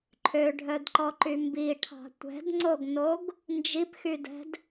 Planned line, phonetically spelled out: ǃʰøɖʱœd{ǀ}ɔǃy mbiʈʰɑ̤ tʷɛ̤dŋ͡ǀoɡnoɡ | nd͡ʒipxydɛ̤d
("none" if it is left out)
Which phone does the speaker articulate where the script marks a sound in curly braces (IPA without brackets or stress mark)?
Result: ǃ